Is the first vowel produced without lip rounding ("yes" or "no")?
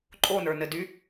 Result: no